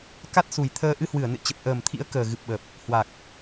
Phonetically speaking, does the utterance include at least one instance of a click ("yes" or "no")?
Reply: no